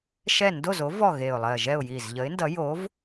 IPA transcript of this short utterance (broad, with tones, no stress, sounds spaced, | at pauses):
ʃ ɛ˥˨ n d o˥˨ z o˨˥ v ɔ˥˨ ɣ e˧˩ ʊ̯ lˠ ɜ˧˩ ʒ ɛ˥˨ ʊ̯ j i˧˩ z ʎ ə˨˥ ɪ̯ n d ʌ˨˥ j o˨˥ v